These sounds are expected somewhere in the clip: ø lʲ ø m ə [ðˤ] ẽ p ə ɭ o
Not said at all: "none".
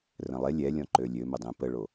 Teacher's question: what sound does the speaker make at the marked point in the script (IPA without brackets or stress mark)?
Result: dˤ